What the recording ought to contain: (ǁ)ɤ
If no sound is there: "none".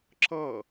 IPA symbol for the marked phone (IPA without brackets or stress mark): ǁ